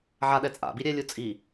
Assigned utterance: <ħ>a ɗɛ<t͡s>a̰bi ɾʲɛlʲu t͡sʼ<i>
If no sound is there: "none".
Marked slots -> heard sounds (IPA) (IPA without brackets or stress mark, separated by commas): ʕ, t͡sʼ, i